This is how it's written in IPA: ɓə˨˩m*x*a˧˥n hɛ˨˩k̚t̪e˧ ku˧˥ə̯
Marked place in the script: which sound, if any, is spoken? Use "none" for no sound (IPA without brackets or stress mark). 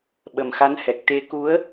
x